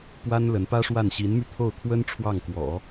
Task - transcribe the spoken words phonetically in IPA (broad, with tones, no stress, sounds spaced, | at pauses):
p w a˥ n l ə˧˥ n p ä˥ ʂ w a˥˩ n ɕ i˧˥ n m y˧ t̪ʰ o˥˩ ʊ̯ kʰ w ə˥ n ʈ͡ʂʰ w ɑ˥˩ ŋ k w ɔ̰˨˩˦